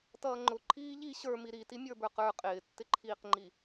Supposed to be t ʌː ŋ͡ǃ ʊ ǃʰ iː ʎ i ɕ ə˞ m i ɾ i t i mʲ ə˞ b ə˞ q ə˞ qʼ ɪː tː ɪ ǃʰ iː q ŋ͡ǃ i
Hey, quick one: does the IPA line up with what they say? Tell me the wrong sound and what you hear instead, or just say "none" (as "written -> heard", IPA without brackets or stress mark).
none